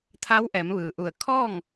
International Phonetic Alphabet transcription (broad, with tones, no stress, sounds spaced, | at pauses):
t̪ʰ aː˧˥ w ʔ ɛː˩˧ m ʋ ɯː˩ ʔ u˧˩ ə̯ kʰ ɔː˥˨ ŋ